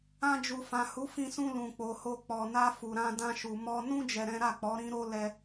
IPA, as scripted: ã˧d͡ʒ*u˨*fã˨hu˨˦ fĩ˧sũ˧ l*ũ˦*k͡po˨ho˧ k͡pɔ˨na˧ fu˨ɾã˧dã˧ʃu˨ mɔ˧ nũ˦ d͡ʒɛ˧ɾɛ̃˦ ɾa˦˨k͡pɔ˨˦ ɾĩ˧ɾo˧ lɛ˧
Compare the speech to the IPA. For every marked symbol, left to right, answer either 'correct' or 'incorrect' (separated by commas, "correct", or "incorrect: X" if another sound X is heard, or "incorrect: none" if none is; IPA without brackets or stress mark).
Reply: correct, incorrect: ũ˨